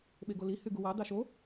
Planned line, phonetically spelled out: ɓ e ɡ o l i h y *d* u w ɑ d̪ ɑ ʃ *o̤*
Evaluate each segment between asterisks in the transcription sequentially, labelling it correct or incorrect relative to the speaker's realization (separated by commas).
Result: incorrect, incorrect